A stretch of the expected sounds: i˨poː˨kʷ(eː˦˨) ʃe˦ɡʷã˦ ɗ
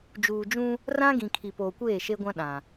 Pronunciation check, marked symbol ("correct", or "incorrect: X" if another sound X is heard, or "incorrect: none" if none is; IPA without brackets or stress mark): correct